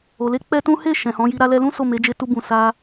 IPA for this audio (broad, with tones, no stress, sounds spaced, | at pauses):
o˨ l e˧ k͡p ɛ˦ t ũ˦ h e˦˨ ʃ ɛ̃˨ h ɔ̃˨˦ j i˧ ɾ a˦ l ɛ˧ l ũ˦ s o˦˨ m e˨˦ d͡ʒ e˧ t u˧ b ũ˨ s a˧